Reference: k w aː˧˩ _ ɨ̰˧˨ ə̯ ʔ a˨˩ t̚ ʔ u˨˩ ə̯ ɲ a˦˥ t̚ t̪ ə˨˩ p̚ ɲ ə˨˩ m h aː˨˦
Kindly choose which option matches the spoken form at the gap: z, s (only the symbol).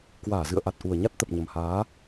z